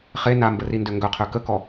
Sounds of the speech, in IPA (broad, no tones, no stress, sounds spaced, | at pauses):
χ e n a m b ə r i n d ø ŋ ɡ œ qʰ ø k ə k ɔ